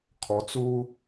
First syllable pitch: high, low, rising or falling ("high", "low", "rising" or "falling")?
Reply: low